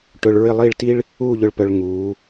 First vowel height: high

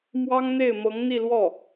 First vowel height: low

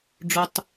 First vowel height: mid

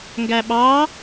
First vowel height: low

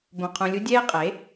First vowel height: mid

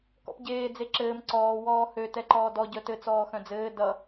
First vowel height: mid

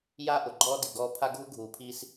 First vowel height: low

